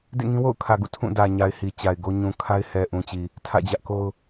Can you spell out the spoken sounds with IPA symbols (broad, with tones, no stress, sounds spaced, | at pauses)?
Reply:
d ḛ˦˨ ŋ ĩ˦ w o̰˦˨ ʊ̯ kʰ ä˨ ɡ ṵ˦˨ tʰ ũ˦˨ d ä˨ ɲ a˨ ɪ̯ h i˨ t͡ɕ a˨ ɪ̯ ɡ o˦ ɲ ũ˨ kʰ a˦ ɪ̯ h ɛ˨ ʔ ũ˨ t͡ɕ i˨ | tʰ ä̰˦˨ d͡ʑ ä˦ ʔ k o˦ ʊ̯